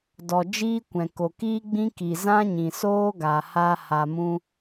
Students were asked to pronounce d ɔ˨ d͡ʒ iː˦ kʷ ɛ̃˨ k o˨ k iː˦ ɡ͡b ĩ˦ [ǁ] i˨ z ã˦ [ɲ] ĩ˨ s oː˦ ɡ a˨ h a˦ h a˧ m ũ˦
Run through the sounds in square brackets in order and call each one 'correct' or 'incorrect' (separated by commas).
incorrect, correct